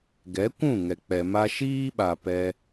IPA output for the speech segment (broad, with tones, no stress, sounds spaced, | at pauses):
ɡ ɛ˨˦ kʷ ũ˦˨ ŋ ɛ˨ k͡p ɛ˨ m a˧ ʃ iː˦ ɓ a˨ p ɛ˧